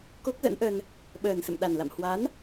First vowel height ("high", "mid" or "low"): mid